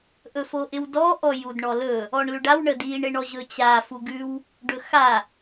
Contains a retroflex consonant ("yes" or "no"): yes